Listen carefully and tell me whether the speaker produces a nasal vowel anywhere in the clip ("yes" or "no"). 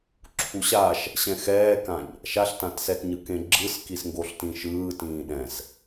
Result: yes